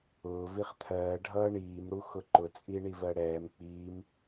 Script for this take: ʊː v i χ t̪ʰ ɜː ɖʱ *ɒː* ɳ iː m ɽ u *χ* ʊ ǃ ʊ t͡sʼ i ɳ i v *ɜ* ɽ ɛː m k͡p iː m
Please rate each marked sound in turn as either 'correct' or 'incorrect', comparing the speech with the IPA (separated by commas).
incorrect, incorrect, correct